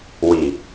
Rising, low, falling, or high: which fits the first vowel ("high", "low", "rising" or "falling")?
low